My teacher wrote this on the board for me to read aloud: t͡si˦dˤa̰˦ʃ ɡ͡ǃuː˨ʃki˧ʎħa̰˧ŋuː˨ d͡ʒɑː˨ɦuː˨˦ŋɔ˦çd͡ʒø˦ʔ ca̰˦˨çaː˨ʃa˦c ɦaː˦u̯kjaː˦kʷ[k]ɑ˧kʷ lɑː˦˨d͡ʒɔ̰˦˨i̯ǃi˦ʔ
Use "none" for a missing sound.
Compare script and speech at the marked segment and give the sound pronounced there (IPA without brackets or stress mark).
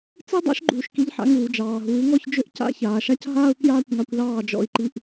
ŋ